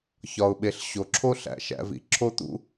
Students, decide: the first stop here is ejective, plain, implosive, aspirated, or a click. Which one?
implosive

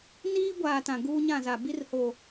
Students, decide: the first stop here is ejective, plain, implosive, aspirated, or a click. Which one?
plain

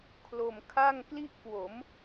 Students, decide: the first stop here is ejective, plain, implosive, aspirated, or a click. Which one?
aspirated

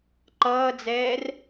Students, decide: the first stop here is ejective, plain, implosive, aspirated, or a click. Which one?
click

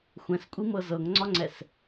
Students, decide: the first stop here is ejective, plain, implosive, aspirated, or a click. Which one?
ejective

